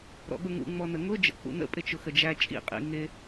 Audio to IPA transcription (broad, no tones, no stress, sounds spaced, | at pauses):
ɾ ɔ̰ ɠ ʊ ŋ ṵ ŋ͡m ɔ n ə ŋ ʊ d͡ʒ ə̰ k͡p ṵ n ə̰ pʼ ɪ t͡ʃ ʊ x ə d͡ʒ æ t͡ʃʼ ḭ qʼ ḭ ŋ ɪ